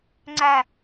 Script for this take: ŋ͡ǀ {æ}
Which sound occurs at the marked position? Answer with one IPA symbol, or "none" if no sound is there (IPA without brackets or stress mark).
æ